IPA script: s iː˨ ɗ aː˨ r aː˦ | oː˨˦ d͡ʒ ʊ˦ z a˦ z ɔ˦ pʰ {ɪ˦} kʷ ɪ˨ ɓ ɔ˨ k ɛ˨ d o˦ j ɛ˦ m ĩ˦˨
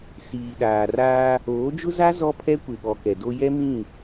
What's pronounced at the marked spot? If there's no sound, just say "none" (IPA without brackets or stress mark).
ɛ˦